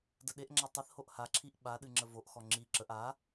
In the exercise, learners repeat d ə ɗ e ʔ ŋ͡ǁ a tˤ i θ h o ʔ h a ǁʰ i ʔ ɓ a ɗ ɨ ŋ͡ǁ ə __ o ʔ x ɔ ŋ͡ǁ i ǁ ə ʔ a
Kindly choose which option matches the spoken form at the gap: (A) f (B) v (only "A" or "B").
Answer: B